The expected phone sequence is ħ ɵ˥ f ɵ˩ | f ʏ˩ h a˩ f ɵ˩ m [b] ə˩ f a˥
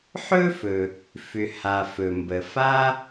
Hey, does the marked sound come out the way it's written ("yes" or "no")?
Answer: yes